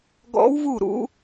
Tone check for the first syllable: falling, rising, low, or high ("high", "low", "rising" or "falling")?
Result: rising